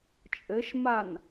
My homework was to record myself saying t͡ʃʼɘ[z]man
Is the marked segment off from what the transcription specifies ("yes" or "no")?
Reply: yes